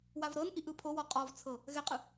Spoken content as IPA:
wavɾɤnʔiʔ ɯpʰowɔ qʼɔvt͡sʰɤ | ɣɛqʼɯ

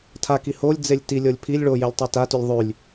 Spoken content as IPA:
tʰaki holʲd͡zelʲ tilʲɤlʲ pʰilʲ ɭojelʲtˤe tatylʲ ðˤylʲ

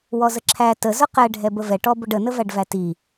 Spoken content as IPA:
wɔzəǁʰæ təzʊ qɛɖʱɛ bəvɛʈɔbʊɖ ənəvæɖvæ ti

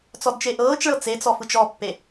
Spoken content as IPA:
t͡sɔdt͡ʃeʔɤːt͡ʃɭɤ t͡set͡sɔ fɯt͡ʃɔpːe

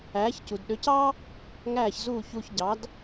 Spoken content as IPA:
æː˩˥ç cu˩dɗø˩˥cɑ˥ | ŋæː˥˩çzuː˥˩ çuː˧çɟɑ˩˥d

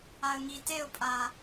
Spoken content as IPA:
aə̯ŋi teʊ̯pʼa

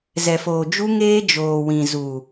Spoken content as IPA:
zɛ˨foː˨d͡ʒu˦ ŋeː˦ d͡ʒoː˨wĩ˨ zu˨

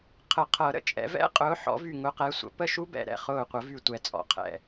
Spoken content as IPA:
qʰə˨˩˦qʰɤ˨˩˦ ɾə̰˧˩t͡ʃʼɛ̰˨˦vɛ̰˦˥ qʼʊː˨˦ħɔ̰˨˩˦vy˧˩ ŋʊ˨˦qɛ˨˦sʷə̰˨˩˦ pə˥˩ʃu˦˥bɛ̰˧˩ ɾɛ̰˥˩χʊː˧˩qʷə˨˩˦vy˧˩ tʷɛ˧˩t͡sʼɔ̰˨˦qʰɛ̰˧˩

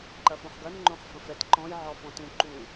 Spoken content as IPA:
ǃɐfõχɡɐn ŋ͡ǃõχfə̃fɛt ǃɔ̃j ʕɔfɔ̃tũ ǃu

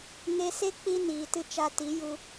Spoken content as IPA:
ŋe˧se˦ k͡pi˦ niː˨tɨ˦ t͡ʃa˧ti˨˦ju˧

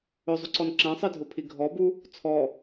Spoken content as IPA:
ɵzˤuǀɔn ǁæ̃sˤidʱopʰi ɡʱɔbu | t͡sʰɔ

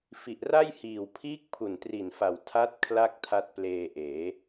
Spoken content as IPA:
fi˨˩ʔra˥˩jhiː˨˩w pʰiː˦˥k̚ pʰu˨˩ntri˨˩nfa˨˩w tʰa˦˥t̚ kʰla˥˩k̚tʰa˦˥t̚pleː˧ʔeː˩˦

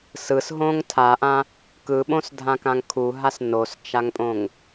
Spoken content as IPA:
sɯsɦõŋ tʰaʔã | kɯɓõsdʱãkãŋ kʰuɦas nost͡ʃaŋpʼõŋ

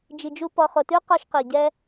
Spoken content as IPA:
d͡ʒi˨d͡ʒu˦ pɔ˨χo˨tʉ˦ qɔ˦ʃqi˨ ɟɛ˦

